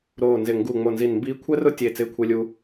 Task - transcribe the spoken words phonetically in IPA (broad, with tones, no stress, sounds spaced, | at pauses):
ɾ oː˧˩ n z ɪ˧˩ ŋ ɡ u˧˩ ŋ͡m o˧˩ n z i˧˩ n m b iː˦˥ kʷʰ ɛ˦˥ r ʊ˦˥ tʲ e˧˩ t͡s ɪː˦˥ kʷʰ e˦˥ lʲ u˦˥